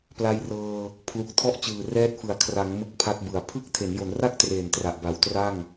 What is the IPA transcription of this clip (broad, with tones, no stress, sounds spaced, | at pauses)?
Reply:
p l a˧ j r ɤː˧ | pʰ l u˨˩ k̚ tʰ ɔ˦˥ ʔ t͡ɕ ɯː˨˩ r ɛː˦˥ t̚ f ɯ˨˩ a̯ kʰ r a˩˦ ŋ m ɯ˦˥ k̚ pʰ a˦˥ t̚ b ɯ˨˩ a̯ pʰ ɯ˥˩ k̚ tʰ e˩˦ n j o˩˦ n r a˥˩ k̚ t r eː˨˩ n t r a˨˩ ʔ b a˩˦ w t r a˥˩ ŋ